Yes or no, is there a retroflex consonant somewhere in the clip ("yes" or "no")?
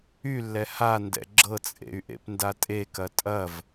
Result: no